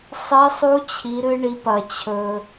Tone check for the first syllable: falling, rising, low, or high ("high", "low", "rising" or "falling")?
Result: rising